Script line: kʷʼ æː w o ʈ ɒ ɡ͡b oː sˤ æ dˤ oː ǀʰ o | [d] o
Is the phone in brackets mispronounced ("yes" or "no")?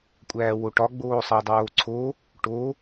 yes